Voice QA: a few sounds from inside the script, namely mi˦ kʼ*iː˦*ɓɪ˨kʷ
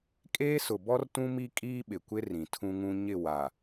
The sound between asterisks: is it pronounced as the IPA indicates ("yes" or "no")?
yes